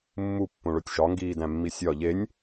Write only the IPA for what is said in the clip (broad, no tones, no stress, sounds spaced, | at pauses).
mː u pː õ ɭ o tʲ ʃ ɒ ŋ ɡ iː d æ̃ mː i sʲ ɒ ʎ e nʲ